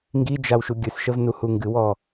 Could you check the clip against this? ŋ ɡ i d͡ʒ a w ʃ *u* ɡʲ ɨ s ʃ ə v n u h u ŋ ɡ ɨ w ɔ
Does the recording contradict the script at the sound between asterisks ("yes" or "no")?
no